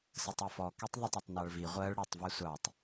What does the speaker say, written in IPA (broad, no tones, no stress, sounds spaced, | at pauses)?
s ə tˤ ɜ f ɔ k i tˤ ðˤ ɪ tˤ ʌ tˤ n ɑ ɭ v i ʁʷ ɜ ɭ ɽ ʊ tˤ v ɛ sʷ ɑ tˤ